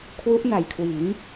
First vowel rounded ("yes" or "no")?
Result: yes